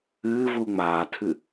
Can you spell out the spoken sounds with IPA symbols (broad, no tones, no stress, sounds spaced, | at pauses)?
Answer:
ɨː v u ŋ͡m aː tʰ ɨ